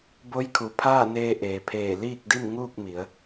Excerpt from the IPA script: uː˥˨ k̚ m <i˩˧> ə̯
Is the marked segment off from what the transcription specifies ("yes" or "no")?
no